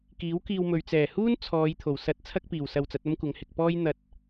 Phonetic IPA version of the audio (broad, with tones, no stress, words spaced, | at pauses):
kiː˨˥wkiː˧wmɵ˨ɥ t͡sɛː˨˩huː˥n t͡sʰɔː˨˧j t̪ʰo˨˩wsɐ˧t̚t͡sʰɐ˥k̚ piː˨˩wsɐ˧wt͡sɐ˨˥t̚ ɐ˥mkʷɐ˨˧ŋhɪ˧k̚ pɔː˥j n̪ɐ˧t̚